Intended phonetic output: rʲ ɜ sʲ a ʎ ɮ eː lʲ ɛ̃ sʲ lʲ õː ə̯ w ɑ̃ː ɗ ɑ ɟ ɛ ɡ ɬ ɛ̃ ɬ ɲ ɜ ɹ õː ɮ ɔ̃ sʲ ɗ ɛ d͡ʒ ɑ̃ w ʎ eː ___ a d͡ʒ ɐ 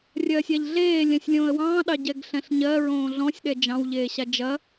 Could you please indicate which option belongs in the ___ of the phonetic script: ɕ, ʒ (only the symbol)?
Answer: ɕ